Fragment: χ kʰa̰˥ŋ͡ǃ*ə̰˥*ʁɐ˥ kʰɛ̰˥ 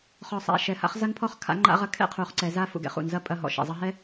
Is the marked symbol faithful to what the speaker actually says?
no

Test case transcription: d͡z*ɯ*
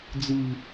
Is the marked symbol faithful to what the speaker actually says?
yes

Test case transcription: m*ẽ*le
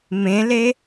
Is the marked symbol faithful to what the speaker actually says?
yes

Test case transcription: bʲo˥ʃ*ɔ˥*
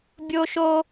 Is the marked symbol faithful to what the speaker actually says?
no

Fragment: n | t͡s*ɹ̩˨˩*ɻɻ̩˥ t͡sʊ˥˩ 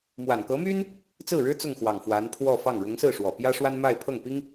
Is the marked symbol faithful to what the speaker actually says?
no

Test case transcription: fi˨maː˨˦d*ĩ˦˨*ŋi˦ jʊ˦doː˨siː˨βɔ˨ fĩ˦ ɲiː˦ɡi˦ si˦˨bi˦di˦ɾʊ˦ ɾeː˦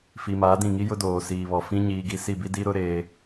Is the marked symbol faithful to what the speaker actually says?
yes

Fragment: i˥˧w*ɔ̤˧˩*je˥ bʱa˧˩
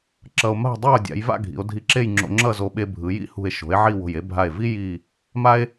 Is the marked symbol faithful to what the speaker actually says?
no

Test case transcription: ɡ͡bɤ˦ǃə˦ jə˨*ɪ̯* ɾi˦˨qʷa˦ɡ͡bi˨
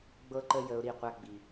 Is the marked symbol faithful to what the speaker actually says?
no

